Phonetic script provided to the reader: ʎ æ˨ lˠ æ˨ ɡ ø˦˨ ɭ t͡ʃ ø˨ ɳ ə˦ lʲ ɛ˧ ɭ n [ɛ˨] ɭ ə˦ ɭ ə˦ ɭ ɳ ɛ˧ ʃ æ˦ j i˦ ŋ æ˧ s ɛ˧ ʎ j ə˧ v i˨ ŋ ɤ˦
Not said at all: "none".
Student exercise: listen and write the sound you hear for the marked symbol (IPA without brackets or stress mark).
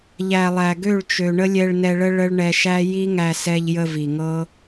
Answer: ɛ˧